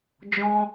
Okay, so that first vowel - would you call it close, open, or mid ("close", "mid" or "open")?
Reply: mid